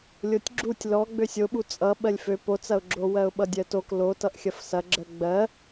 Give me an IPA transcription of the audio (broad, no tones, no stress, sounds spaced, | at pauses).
lʲ o tʲ ɡ͡ǁ u tʲ l ɔ ɡ͡b ø sʲ o ɓ u t͡sʼ ʌ ɓ ɜ lʲ f ø p o t͡s ɐ ʊ̯ ɡ͡ǁ o w ɜ ʊ̯ ɓ ʌ dʲ ɜ t o k l o t ʌ ʔ xʲ ɐ f s ɐ ɡ͡ǁ ɜ ɡ͡b ɜ